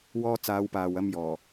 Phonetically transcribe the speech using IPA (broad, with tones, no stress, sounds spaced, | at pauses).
w ɔː˧ t͡s aː˨˧ w p aː˨ w ɐ˧ m j ɔː˨˩